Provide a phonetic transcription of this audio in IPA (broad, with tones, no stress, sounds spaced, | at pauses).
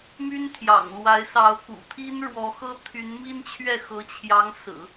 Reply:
m y˥ n t̪ʰ j ɑ̰˨˩ ŋ l w a˧˥ ɪ̯ s ɑ˧˥ ʊ̯ k ṵ˨˩ t̪ʰ i˥ n ɻ w ɔ˧˥ x ɤ˥ t̪ʰ y˧˥ n m i˥ n t͡ɕʰ ɥ ɛ˥˩ x ɤ˧˥ t͡ɕʰ j ɑ˧˥ ŋ s ɹ̩˨˩˦